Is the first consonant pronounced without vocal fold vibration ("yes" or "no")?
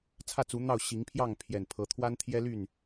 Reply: yes